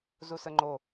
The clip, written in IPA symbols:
zusəŋ͡ǃo

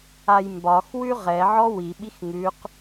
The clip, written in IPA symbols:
ajmbɒx wʉʁɛ ʕɔwi ɓixŋʉq

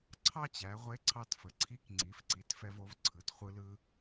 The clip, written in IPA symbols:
ǀʰɑ˥t͡ɕæ˩˧ʁʷe˧˥ ǀʰɑ˧tfə˩ǀʰi˧˥k ŋ͡ǀi˩˧f ǀi˩˧tfɛ˧vo˩˧v ǀʰɯ˩˧tχʷɯ˧lɯ˧

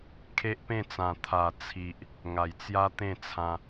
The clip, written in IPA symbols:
kʰe˦ʔpẽ˥˧t͡sã˨˩ t̪ʰa˨˩ t͡sʰi˨ʔ | ŋa˨˩jt͡sja˦t̪ẽ˥˧t͡sʰã˧

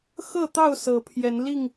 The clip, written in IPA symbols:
xɤ˥˨t̪ɑ˥˨ʊ̯ sɤ˨˦pʰjɛ˨˦nli˥˨ŋ

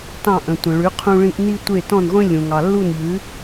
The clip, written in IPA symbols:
tɑ̃˥˩ʔə̃˩ tʷə̃˩ɭʉ˩˥ qʰũ˧ɭĩ˧ʔ ni˥tʷe˥˩ tɔ̃˥˩nʁʷĩ˥ lʲũ˩ ŋɑ˩lːu˥˩nʎʉ˩˥

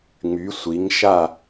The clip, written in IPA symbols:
ŋ͡my˨˦sʷi˨˦ŋʃa˥˧

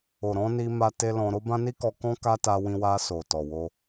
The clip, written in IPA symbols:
o˨ɾɔ̃˧ ni˦ma˦te˦ lɔ̃˧ ɾo˦bã˦ni˦kɔ˧ kɔ̃˦ ka˦ta˧wĩ˧ wa˧so˨ tɔ˨wo˧

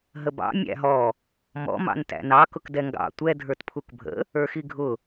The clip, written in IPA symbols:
ɦəbɑ̰ mʲæ̰ɦɔ | mɔ̰ mɑ̰ntæ̰nɑ kʊkdɛŋɡɑ̰ tʷɛ dʱə˞tpʰukbʱə̰ | ə˞xiɡʱʊ

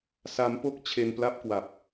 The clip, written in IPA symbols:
sa˦˥mpo˥˩k̚ t͡ɕʰe˧npla˥˩p̚kwa˨˩p̚

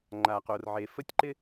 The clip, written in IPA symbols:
ŋ͡ǃa˨qo˨r ʕe˨fə˦tʲǃɪ˦

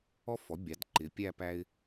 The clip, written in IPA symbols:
ɔ˥˧fɔ˩˥ bʲɑ˩˥dǃɪ˩˥pʲæ˥˧ pæ˧ɪ̯

